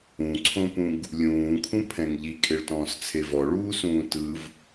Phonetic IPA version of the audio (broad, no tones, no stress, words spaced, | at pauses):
ũǀʰõpũɡ | lʲũːkʰũpʰɛ̃ŋ ʎikʼeɭtɔ̃ːst͡sʰe vɔɭuːsũː tɯv